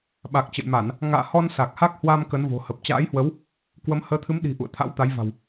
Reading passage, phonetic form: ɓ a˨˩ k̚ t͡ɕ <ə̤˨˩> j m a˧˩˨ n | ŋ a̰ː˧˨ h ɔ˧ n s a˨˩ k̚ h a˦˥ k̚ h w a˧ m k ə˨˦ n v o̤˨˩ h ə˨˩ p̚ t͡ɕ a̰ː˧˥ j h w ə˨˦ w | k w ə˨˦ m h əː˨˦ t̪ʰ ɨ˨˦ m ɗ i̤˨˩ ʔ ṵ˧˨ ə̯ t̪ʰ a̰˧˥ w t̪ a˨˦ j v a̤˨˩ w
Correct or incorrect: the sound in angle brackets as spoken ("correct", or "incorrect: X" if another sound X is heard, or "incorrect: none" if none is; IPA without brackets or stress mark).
incorrect: ə̰˧˨